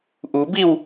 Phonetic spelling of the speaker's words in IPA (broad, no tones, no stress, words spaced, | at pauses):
ʔubiw